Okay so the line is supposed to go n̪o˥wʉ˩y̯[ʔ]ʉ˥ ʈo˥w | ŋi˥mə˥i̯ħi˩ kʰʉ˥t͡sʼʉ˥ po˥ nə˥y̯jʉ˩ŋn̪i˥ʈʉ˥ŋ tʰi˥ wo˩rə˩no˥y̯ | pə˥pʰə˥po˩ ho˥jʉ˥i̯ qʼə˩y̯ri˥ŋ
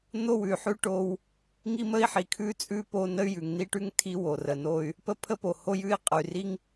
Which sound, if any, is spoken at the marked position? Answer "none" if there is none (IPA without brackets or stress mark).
ħ